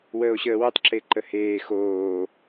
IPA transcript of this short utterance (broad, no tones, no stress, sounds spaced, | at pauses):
w əː o̯ ɕ əː w ɪ tˤ ǁ e ǃ ə h eː x oː